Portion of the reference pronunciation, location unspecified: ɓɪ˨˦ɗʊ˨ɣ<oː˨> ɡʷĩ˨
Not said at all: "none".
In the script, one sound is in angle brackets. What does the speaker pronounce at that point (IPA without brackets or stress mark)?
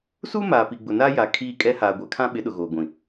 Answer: oː˨